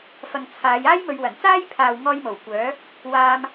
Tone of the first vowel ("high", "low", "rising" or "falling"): low